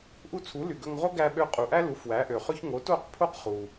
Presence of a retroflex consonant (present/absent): absent